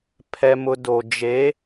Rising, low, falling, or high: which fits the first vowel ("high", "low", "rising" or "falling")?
high